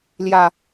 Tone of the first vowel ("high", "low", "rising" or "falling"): low